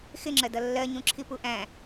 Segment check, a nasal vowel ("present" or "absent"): present